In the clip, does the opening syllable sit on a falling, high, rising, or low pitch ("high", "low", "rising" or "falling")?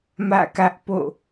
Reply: falling